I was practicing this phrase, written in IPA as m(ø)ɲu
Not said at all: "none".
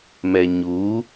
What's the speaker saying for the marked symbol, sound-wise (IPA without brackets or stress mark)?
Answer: ɛ